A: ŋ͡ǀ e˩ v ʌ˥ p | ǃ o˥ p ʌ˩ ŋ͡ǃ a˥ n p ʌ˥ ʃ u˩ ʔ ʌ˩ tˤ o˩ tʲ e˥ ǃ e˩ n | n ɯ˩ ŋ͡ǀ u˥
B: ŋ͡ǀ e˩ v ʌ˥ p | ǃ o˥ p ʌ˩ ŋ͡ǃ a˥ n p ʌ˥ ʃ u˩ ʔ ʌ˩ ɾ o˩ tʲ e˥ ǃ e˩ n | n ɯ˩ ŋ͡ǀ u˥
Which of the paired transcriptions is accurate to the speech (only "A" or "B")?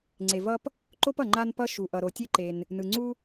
B